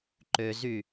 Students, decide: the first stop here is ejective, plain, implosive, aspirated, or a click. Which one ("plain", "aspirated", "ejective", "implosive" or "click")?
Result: click